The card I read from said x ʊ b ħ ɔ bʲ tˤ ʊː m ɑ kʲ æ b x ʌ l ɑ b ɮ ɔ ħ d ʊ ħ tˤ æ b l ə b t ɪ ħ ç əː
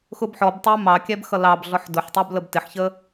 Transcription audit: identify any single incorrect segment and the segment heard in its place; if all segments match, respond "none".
bʲ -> b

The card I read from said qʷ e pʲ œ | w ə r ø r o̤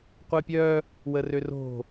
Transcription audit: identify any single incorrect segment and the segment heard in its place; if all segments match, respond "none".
none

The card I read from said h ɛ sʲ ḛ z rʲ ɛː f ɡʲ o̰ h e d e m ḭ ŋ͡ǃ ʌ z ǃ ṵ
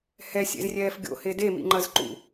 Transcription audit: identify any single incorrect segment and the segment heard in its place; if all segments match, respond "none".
none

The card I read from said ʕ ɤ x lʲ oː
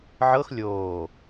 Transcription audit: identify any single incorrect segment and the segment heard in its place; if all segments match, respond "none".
none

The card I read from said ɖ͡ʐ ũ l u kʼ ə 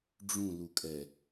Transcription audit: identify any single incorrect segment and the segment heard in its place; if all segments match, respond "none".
ə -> ɛ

